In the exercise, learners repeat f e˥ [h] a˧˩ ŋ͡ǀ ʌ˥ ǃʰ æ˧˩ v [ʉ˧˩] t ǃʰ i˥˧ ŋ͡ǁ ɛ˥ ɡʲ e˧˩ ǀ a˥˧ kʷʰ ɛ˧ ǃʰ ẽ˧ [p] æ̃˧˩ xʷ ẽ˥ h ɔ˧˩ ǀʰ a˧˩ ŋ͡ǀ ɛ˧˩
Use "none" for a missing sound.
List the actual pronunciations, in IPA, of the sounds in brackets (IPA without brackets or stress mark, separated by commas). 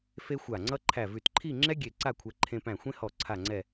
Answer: xʷ, ʉ˧˩, p